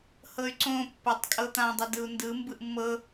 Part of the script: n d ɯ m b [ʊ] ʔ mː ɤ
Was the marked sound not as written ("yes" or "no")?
yes